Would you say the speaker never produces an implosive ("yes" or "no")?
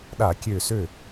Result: no